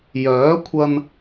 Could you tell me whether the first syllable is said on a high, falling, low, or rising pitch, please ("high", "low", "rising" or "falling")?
rising